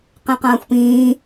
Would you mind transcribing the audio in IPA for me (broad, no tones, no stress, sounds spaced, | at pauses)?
q ẽ q ɐ̃ː xʷ p ĩː